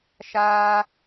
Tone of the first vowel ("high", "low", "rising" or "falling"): high